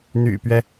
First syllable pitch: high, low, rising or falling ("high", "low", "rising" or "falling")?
low